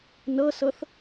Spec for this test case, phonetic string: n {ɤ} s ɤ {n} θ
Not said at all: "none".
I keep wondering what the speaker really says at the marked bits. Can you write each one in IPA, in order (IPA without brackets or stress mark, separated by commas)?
ɤ, none